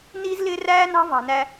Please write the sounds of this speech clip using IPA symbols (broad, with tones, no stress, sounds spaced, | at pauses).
n iː˦ z l ɪː˦ r æː˦ n ɑ̤˦ v ɑ̤˨ n æ˦